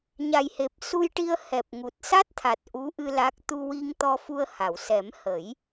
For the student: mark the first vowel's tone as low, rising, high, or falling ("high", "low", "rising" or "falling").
low